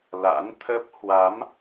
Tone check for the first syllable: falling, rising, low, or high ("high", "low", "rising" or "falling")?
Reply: rising